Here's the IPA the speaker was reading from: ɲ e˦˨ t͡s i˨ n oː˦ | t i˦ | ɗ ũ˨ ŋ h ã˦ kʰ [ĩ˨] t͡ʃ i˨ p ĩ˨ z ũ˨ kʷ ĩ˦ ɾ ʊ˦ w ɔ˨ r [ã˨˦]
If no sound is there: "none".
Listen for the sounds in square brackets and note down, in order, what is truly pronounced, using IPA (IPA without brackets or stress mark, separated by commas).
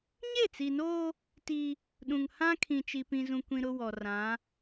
ĩ˨, ã˨˦